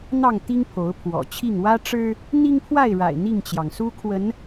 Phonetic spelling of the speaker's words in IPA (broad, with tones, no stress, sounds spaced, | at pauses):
n̪ ɑ˥˨ ŋ t̪ i˦ ŋ pʰ o˨˦ ʊ̯ pʰ w ɔ̰˨˩ t͡ɕʰ i˥˨ ŋ w ä˦ ʈ͡ʂ ɻ̩˦ | n̪ i˦ ŋ pʰ w a˥˨ ɪ̯ ɻ a̰˨˩ ɪ̯ n̪ i˥˨ ŋ t͡ɕ j ɑ˩ ŋ s u˦ kʰ w ə˨˦ n